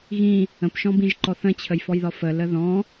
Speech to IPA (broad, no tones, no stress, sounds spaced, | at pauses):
ɣ ĩ | ə̃ p ʃ ɔ̃ b ĩ ʒ ǃ ɔ θ ə̃ t͡ɕʰ ə j f ɔ j ð ɒ f ə l ə ð ɔ̃